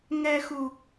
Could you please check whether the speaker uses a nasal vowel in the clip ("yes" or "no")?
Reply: no